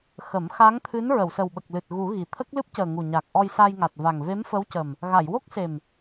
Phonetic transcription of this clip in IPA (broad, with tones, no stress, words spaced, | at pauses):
xə˨˩˦m xa˧˥ŋt̪ʰɨ˧˥n ɹə˨˩˨wsə˨˩wɓə˨˩k̚lɨ˨˩t̚ ɣu˨˩˦ ɣi˨˩ t̪ʰə˦˥k̚lɨ˦˥p̚cəː˨˩ ŋu˨˩ɲa˨˩k̚ ʔɔ˧jsa˧jŋa˨˩t̚va˨˩ŋ ve˧˥mfə˧˥wcə˨˩m | ɣa˨˩˨jwo˦˥k̚se˨˩m